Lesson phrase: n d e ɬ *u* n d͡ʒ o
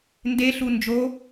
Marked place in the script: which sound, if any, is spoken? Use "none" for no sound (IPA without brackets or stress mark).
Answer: u